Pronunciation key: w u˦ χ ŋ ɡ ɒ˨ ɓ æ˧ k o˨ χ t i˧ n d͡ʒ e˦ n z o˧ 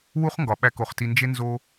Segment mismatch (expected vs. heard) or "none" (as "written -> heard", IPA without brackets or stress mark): none